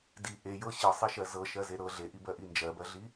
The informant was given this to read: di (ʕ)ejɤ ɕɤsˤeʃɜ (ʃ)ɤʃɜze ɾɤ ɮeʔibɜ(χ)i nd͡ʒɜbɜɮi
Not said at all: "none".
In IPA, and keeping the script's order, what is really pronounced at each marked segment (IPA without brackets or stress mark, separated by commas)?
ʔ, z, ʔ